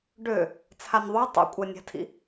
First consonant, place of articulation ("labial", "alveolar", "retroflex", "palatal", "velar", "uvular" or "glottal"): retroflex